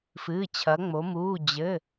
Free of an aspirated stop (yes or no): no